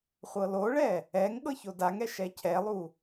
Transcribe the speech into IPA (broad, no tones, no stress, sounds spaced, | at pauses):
χʷ ɤ l o ɭ ɛ | ɛ ŋ ɠ ɤ ç o d a ŋ ɛ ʃ ɛ cʰ ɛ lˠ u